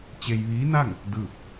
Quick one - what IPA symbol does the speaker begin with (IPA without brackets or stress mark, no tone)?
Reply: t͡ɕ